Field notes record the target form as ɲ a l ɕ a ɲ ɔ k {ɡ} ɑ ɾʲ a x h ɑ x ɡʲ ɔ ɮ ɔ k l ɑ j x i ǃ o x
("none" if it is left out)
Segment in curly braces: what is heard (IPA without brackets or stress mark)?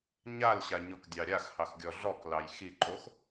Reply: dʲ